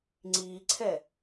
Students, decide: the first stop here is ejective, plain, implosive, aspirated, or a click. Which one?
click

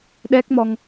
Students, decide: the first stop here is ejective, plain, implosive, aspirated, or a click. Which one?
implosive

